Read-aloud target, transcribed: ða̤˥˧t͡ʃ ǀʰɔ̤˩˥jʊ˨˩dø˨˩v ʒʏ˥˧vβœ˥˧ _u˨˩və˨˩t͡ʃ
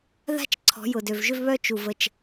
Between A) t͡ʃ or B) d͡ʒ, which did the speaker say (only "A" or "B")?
A